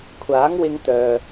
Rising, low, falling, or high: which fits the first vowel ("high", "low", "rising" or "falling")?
rising